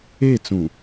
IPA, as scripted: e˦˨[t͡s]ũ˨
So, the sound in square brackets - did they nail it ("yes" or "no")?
yes